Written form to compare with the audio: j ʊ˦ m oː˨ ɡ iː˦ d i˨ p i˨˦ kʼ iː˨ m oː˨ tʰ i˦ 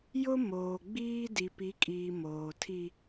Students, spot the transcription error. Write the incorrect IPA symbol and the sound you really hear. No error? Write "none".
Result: ɡ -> ɡ͡b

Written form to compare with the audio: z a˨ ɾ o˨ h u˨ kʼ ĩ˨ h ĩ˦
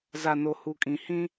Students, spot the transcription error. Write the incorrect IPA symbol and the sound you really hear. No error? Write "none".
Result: ɾ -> n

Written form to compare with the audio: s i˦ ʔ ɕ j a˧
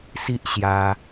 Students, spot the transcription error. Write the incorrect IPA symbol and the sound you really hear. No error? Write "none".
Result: none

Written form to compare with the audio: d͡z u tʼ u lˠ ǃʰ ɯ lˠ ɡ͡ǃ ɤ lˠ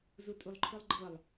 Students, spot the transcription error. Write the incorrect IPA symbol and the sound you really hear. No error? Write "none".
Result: d͡z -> z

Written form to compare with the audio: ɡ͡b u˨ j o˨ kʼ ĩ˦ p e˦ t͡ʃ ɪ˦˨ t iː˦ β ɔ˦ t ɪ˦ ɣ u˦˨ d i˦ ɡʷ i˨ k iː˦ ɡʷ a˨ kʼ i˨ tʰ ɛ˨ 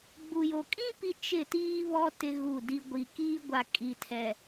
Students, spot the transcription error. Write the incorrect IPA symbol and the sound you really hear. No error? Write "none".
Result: e˦ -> i˦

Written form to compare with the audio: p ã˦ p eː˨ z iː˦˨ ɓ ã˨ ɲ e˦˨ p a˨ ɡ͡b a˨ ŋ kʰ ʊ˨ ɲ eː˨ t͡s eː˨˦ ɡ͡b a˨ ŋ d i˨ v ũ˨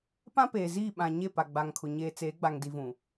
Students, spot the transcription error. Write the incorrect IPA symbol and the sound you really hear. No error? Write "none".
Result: none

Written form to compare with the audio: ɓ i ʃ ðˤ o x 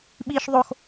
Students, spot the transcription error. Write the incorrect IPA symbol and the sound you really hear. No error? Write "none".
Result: none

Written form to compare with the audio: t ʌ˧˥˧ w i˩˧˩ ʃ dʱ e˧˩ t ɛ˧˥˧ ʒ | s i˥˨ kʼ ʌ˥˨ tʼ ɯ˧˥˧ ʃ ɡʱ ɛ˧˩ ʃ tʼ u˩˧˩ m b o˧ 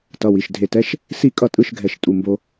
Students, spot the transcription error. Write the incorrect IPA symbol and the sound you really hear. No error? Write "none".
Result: ʒ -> ʃ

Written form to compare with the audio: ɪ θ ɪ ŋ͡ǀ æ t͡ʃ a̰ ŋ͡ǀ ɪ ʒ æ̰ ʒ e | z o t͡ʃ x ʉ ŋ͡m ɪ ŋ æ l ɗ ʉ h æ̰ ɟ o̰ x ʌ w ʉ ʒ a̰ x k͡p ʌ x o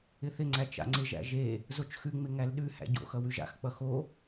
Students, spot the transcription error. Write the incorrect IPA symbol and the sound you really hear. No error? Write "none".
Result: none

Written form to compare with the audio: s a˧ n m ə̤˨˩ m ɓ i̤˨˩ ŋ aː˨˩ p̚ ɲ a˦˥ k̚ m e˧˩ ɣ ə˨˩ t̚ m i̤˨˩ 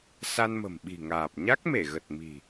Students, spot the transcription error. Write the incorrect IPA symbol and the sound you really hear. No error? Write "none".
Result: none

